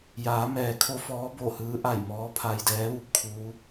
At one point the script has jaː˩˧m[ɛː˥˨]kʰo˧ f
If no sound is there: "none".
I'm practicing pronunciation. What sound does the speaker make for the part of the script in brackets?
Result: ɛː˩˧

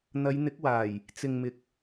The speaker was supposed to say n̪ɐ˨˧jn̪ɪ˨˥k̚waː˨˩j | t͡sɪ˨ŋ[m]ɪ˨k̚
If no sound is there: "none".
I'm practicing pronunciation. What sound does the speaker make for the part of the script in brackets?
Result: m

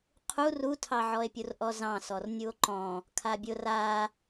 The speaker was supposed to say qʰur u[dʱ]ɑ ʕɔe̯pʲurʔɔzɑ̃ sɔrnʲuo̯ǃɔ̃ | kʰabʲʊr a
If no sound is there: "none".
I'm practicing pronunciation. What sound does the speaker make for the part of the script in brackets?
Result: tʰ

